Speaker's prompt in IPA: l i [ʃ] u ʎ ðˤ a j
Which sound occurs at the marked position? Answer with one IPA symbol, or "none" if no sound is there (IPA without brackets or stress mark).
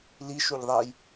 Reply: ʃ